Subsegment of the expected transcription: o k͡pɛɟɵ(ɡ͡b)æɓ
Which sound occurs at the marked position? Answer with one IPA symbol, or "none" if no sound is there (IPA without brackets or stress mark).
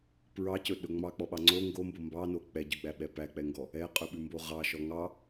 ɡ͡b